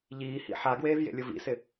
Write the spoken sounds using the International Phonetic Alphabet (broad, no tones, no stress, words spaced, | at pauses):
ʎiːhḭ ħaɡweːv jḛlʲʊvḭsɪ